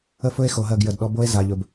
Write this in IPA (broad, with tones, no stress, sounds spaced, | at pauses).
ə˦ f ɵ˦ e̯ x o˨ ɦ ɜ˦˨ ɡ j ə˨ d ɗ ɔ˦ b o˦ e̯ z a˨ ʎ ɵ˨ b